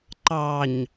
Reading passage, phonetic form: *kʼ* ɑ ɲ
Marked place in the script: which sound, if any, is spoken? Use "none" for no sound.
ǃ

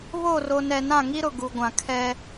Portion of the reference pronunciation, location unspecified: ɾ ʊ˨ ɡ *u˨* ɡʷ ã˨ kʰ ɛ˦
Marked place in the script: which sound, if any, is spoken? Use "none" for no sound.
u˨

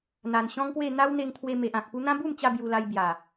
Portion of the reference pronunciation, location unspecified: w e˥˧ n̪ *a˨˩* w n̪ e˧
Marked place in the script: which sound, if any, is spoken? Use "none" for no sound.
a˦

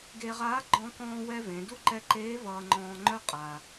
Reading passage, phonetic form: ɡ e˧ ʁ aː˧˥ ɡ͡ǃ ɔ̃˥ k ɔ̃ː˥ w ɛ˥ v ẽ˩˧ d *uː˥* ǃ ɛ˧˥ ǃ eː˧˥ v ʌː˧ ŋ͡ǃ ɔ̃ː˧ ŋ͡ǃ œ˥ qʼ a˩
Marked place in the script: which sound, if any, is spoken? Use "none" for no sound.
u˥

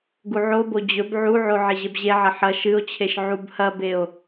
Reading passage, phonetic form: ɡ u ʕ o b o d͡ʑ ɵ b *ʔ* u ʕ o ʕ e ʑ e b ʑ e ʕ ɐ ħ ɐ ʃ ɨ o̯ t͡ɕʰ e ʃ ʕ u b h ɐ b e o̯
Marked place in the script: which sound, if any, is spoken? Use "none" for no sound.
ʕ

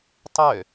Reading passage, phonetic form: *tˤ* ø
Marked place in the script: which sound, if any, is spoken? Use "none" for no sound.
tˤ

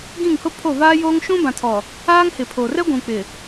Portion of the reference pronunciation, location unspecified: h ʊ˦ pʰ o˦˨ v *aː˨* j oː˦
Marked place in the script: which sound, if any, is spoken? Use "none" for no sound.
aː˦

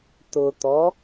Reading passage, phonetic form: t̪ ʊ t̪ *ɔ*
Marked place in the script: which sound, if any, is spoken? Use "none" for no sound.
ɔ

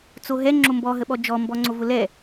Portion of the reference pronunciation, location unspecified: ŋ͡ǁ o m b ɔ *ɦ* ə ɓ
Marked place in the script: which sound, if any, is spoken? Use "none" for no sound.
ɦ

